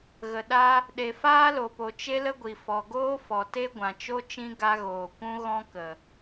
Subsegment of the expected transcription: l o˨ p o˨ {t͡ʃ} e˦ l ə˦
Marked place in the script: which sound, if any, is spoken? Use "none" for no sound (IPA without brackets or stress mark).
t͡ʃ